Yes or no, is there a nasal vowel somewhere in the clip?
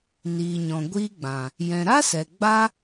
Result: yes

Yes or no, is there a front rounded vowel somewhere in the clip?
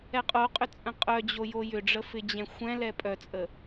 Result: yes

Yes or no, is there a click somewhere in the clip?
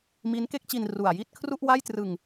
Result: no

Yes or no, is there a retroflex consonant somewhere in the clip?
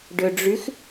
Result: yes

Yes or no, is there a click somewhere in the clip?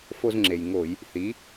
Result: yes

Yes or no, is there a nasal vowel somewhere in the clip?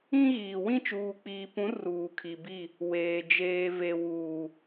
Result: yes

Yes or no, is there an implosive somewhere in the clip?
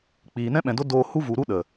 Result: yes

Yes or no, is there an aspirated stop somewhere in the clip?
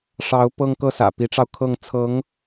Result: yes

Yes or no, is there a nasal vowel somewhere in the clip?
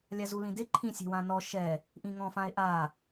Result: yes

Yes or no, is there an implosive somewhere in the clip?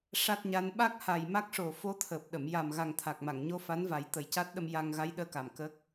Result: yes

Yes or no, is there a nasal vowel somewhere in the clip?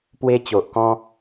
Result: yes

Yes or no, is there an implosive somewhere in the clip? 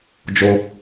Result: no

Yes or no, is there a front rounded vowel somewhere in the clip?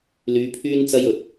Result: yes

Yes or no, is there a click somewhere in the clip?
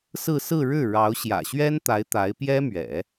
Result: no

